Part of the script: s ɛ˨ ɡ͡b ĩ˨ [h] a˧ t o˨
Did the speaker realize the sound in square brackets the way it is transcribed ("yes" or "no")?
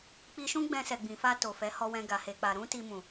no